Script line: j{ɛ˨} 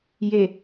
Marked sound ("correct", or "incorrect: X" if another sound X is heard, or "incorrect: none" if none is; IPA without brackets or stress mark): incorrect: e˨